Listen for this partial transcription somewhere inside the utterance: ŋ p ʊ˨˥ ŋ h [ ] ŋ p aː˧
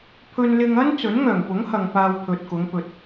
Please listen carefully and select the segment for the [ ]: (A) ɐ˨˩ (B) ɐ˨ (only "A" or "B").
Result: B